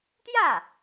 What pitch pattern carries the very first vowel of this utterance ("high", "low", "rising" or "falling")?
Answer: falling